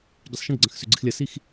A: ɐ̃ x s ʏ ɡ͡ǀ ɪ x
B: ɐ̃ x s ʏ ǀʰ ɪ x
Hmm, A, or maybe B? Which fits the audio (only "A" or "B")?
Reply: A